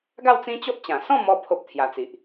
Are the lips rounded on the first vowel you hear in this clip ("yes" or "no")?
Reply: no